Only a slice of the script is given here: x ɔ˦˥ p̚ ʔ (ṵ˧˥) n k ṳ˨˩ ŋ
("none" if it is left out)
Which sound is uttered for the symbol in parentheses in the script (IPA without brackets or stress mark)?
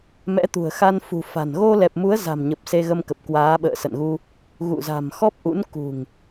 ṵ˧˥